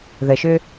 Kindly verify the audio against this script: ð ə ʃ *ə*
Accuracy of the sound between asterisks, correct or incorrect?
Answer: incorrect